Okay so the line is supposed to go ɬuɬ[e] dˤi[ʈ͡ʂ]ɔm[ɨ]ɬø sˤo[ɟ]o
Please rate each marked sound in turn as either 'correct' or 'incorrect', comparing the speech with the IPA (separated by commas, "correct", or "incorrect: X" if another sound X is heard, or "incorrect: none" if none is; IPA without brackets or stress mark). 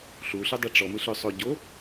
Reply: incorrect: ɨ, correct, correct, correct